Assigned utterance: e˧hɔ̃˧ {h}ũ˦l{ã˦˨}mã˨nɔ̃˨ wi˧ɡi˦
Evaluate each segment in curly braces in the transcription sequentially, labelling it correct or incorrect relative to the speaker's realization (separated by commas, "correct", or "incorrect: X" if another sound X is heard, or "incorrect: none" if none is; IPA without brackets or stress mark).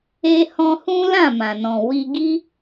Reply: correct, correct